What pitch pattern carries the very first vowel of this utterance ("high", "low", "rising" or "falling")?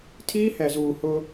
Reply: high